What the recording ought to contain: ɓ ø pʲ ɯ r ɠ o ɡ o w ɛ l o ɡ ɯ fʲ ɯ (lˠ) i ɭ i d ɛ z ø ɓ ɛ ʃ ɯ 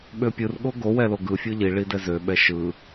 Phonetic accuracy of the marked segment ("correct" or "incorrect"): incorrect